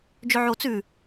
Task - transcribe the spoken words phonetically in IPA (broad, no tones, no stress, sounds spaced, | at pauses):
d͡ʒ ɵ ʕ o t͡s ʉ